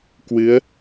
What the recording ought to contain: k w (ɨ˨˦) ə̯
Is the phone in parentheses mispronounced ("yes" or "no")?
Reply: no